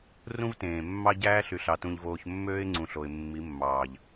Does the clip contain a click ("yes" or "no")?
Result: yes